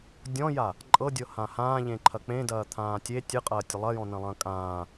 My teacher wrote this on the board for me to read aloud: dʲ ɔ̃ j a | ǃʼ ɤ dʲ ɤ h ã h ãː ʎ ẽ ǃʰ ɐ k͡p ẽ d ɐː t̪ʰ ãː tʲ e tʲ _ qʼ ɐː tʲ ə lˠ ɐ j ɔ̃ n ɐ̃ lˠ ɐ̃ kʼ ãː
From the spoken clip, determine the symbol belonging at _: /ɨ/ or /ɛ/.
ɨ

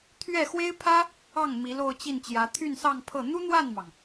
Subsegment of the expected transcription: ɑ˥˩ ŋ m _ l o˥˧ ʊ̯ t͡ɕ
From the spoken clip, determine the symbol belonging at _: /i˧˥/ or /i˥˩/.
i˧˥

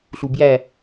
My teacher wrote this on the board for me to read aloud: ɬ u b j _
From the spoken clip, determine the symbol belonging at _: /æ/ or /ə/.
æ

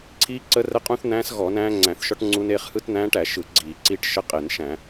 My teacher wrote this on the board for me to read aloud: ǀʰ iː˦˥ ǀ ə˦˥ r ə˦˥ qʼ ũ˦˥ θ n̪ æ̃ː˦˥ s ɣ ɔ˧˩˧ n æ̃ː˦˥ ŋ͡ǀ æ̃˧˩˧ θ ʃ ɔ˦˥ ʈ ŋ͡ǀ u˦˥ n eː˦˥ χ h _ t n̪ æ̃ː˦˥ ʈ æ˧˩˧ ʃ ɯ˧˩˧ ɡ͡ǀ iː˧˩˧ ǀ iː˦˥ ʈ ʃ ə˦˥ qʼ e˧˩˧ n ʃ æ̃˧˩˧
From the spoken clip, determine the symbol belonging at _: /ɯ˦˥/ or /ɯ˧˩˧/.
ɯ˦˥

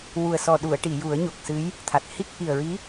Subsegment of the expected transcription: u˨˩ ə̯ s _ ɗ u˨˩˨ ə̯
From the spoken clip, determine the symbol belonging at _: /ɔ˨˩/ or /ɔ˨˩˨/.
ɔ˨˩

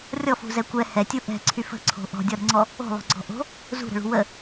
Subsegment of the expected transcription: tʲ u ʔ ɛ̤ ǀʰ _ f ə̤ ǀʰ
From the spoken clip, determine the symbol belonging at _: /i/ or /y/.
y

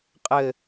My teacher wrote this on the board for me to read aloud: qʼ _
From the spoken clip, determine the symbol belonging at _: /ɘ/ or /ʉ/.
ɘ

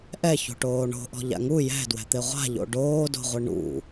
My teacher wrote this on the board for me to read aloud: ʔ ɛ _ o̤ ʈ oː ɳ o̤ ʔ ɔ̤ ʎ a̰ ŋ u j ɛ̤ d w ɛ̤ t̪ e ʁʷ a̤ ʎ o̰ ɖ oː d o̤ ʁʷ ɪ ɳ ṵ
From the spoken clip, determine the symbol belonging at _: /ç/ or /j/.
ç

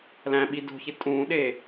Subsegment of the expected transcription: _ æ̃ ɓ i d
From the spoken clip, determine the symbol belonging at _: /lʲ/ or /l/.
l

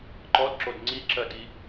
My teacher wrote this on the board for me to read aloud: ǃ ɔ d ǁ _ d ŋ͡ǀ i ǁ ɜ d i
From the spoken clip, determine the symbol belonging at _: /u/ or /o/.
o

